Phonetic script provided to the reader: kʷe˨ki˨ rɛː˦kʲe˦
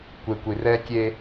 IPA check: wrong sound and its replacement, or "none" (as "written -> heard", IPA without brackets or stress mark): k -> kʷ